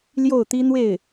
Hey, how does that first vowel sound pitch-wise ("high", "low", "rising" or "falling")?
falling